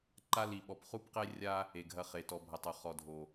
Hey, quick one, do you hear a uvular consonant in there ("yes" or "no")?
yes